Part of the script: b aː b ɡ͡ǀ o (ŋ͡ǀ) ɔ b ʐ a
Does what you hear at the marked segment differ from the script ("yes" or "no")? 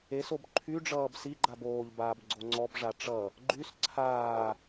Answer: no